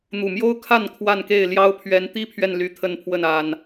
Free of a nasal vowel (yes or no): yes